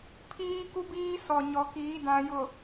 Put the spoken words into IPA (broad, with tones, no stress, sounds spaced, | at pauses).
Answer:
pʰ iː˦ k u˦ b iː˦ s ɔ˨ ɲ ɔ˨ k iː˨˦ d ã˨ j ʊ˨